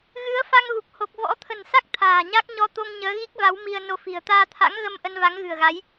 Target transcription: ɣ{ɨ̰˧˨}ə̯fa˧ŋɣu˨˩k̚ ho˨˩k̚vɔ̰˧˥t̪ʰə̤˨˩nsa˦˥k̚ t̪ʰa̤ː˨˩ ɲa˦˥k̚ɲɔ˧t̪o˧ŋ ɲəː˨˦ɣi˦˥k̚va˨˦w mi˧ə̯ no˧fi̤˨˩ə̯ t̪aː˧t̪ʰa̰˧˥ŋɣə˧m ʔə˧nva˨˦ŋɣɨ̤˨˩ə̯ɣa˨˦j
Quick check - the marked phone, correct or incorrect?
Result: incorrect: ɨ˨˦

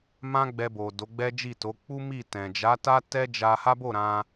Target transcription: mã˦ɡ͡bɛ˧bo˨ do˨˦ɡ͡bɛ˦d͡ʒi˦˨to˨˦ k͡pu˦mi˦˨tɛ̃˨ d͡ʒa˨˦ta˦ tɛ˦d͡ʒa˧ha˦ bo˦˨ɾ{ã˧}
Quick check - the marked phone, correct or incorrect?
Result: correct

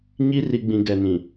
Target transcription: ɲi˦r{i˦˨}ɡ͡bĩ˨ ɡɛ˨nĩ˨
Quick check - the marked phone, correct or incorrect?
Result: incorrect: i˨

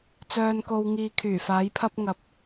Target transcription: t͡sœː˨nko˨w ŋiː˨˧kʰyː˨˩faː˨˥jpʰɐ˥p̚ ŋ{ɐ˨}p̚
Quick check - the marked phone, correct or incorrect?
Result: incorrect: ɐ˧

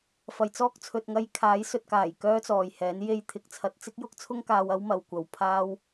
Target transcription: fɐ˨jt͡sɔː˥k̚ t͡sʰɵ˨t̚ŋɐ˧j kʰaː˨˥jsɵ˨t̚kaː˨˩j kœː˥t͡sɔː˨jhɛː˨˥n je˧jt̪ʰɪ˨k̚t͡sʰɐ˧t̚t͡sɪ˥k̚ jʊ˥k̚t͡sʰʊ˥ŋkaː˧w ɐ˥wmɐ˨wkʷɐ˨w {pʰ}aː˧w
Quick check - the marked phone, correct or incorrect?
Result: correct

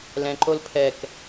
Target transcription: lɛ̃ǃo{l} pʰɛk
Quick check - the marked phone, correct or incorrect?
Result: correct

